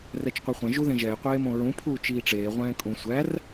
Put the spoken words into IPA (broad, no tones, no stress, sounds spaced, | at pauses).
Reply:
r ɛ t͡ʃ qʷ e χʷ ɛ̃ ʒ u ð ẽ ʒ ɛ ɪ̯ qʷ eː m õ ɹ ũ pʰ uː t͡ʃ iː ʈ͡ʂ eː ʁʷ ɛ̃ː kʼ ũ sʷ æ r